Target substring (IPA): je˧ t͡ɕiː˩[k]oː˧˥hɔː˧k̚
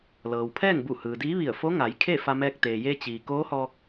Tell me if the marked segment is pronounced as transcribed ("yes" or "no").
yes